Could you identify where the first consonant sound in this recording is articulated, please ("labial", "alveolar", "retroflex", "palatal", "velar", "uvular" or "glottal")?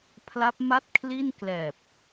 labial